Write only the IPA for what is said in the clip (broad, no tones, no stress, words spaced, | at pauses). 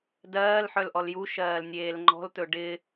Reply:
dɜːlħœl ʔɔljuʃɜːl nʲeːlŋ͡ǃɔ̤ltɵ ɖɪ